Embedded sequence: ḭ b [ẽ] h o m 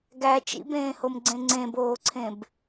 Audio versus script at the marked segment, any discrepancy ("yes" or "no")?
yes